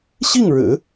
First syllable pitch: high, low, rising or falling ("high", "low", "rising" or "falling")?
falling